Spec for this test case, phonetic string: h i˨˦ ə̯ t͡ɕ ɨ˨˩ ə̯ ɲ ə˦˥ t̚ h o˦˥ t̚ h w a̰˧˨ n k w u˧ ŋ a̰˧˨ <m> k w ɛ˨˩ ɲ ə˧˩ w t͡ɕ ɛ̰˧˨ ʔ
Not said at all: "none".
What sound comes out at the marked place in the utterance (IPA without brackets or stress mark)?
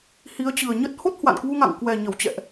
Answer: ŋ